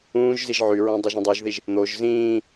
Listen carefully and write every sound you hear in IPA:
ũː ʒ z i ʒ ʕ y ɹ õ dˤ u ʒ ĩ dˤ u ʒ ð i ʒ | n̪ o ʒ z ĩː

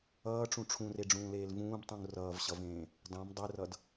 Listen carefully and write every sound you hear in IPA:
ʌː ʈ͡ʂ ũ ʈ͡ʂʰ ũ r e ɖ͡ʐ ũː l eː l v ũː b tˤ ũ ŋ r ʌː v ɕ ʌ v ẽː | dˤ ẽ m dˤ e r ʌ d

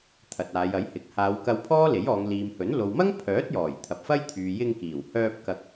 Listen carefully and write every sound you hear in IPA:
t̪ʰ ɐ˨ t̚ aː˨˧ j ɐ˨˥ j h ɪ˨˥ k̚ h aː˨˧ w k ɐ˧ w pʰ ɔː˥ l e˨˥ j ɔː˨˧ ŋ l iː˨ m h ɵ˨˥ n l o˨ w m ɐ˥ ŋ pʰ œː˨˥ t̚ j ɔː˨˩ j t̪ʰ ɐ˨ p̚ f ɐ˥ j t̪ʰ yː˨ j ɪ˧ ŋ k iː˨˩ w h œː˧ p̚ k ɐ˧ k̚

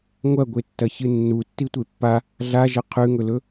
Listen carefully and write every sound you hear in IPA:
ŋʷ ɐ ɡʷ e tː ɐ ç ɨ nː u tː i tʷ e pː a | ɮ a ʒ ɐ qʰ ʉ ŋ ɵ l ɵ

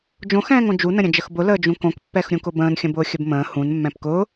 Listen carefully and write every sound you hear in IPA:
d͡ʒ õ x ɛ̃ː ŋ õ d͡ʒ u n ə̃ ɾʲ ə̃ d͡ʒ ə x b ʊ l əː d͡ʒ ũ k õ k pː ɛ x ɾʲ ũ k ʊ b ə̃ː n xʲ ə̃ b ʊː xʲ ə b m ə̃ː h ũ n mː ɛ̃ p k ʊː

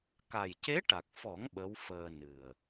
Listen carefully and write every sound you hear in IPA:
k a˨˩ j c e˧˥ ʈ a˨˩ k̚ f ɔ˨˩˦ ŋ ɓ ə˧˥ w f əː˧ n ɨ˨˩ ə̯

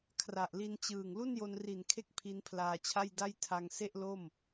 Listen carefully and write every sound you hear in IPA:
kʰ r a˨˩ ʔ l i˧ n t͡ɕ ɯː˨˩ ŋ l u˥˩ n j o˧ n r i˨˩ n kʰ e˦˥ k̚ pʰ i˦˥ n pʰ l aː˧ t͡ɕʰ a˥˩ j d a˥˩ j tʰ a˧ ŋ s e˥˩ ʔ l o˥˩ m

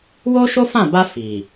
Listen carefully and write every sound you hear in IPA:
w o˦ ʃ o˦ f ã˦˨ b a˧ f i˨

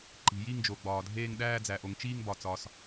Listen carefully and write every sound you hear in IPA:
ǃ i̤˩ j i˥˧ ŋ d͡ʒ o˩ ɡ͡b ɒː˩ dʱ eː˥˧ ŋ ɗ æː˥˧ d͡z æ˩ ʔ o˩ ŋ t͡ʃ iː˥˧ ŋ b ɒ˩ t͡s ɒː˩ s

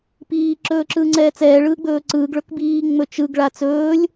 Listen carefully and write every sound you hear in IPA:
p iː ǁ ɵː ǁ ɯː ŋ͡ǀ ɛː t͡s ɛː ɭ ɯː ɡ͡b ɵː ǀ ɯː ɡ ɭ ɵ k b iː ŋ͡m ɵ t͡ʃ ɯ ɡ ɭ a t͡s ɵː lʲ

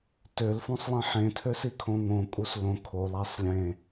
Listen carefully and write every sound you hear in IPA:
t ø l f õ sˤ lˠ ĩ ħ ẽ tʰ ø s i kʰ õ ŋ õ kʼ u s l õ kʰ o lˠ æ sˤ lʲ ẽ

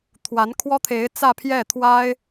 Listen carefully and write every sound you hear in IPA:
t̪ʰ w a˧˥ n kʰ w ɔ˥ t̪ʰ e˧˥ ɪ̯ t͡s ä˥˧ pʰ j ɛ˥˩ t̪ʰ w a˥ ɪ̯

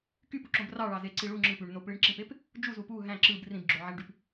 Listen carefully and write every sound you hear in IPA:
k y p u ǁ õ b r ɑ ɭ ɑ z e ǀ i ɭ u ŋ͡ǁ ɯ p y ɳ n o p ɭ i ɳ ǁ ĩ p e p | d͡ʒ u z u p u ɦ æ̃ ǁ ɯ b r ĩ b ɡ͡ǁ o ʕ æ ɳ ɖ y p

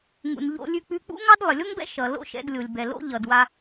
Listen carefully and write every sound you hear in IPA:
ŋ ṵ˩ n ʎ o̰˧ lʲ ʉ˧ k͡p ʉ˧ k͡p ṵ˥ ŋ ɑ˥ d lˠ ɪ˩ lʲ o˥ ŋ b ɛ̰˥ ʃ ʌ˩ l o̰˥ ʃ ɛ̰˧ d lʲ o˩ lʲ b ɛ˩ l o̰˥ ʎ ʌ˩ d w a˧

